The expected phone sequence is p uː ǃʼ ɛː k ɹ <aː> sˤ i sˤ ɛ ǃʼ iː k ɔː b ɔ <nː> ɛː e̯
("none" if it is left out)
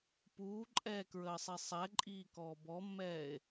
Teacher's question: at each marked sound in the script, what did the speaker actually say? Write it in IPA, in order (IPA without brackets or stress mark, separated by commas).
əː, mː